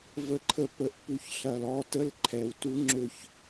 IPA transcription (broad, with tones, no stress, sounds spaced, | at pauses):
v ə˥ ǃʰ ə˥ p ə˥˩ ʔ p u˥˩ ç ɬ ɐ˨ l ɔ˥˩ t ə˥˧ l ǃʰ ɛ˨ w t u˥ ŋ͡ǁ ø˥˩ ç